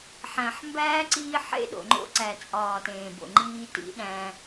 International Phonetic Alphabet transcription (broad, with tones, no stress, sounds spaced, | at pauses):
ħ æ̃˨ ħ m b æː˦ ǀ iː˦ ħ ḛ˦ ɗ o̰˨ ŋ͡ǃ o̰˦ ǀ æ˨ t͡sʼ ɒː˨ t ẽː˨ b o̰˨ ŋ͡ǃ iː˦ t ḭ˦ ɗ æ̃˦